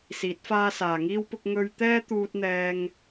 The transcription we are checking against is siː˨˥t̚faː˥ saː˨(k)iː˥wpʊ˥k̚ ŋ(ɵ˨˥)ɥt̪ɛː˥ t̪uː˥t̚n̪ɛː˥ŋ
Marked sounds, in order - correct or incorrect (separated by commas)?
incorrect, incorrect